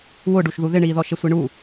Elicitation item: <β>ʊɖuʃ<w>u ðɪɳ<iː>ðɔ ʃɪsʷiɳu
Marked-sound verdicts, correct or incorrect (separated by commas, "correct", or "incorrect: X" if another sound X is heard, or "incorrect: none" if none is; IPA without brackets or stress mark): incorrect: w, incorrect: ð, correct